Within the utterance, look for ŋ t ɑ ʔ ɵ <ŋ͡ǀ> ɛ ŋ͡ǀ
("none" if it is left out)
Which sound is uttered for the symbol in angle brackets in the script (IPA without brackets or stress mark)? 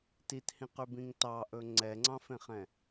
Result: ŋ͡ǀ